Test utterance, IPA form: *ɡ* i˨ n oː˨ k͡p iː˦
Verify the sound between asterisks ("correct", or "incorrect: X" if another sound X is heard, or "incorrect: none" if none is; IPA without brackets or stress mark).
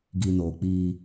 correct